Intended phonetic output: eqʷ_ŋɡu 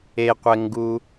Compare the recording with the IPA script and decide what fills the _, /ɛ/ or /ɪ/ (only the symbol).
ɛ